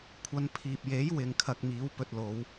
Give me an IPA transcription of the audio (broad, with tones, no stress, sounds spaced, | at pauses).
kʷʰ ɐ˧ n pʰ iː˨ p̚ j e˨˥ j w ɪ˨ ŋ kʰ ɐ˨ k̚ m iː˨˥ w p ɵ˧ t̚ l o˨˧ w